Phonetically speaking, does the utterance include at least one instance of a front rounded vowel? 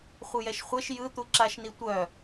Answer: yes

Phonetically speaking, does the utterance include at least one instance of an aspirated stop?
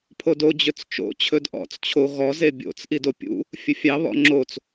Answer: yes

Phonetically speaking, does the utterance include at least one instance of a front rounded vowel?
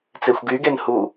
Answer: yes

